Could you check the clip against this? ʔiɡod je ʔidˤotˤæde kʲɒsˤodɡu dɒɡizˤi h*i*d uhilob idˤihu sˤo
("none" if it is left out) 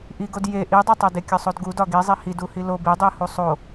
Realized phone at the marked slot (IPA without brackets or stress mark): i